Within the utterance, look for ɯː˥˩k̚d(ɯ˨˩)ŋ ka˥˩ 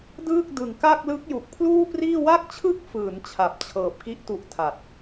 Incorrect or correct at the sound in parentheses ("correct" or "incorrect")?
correct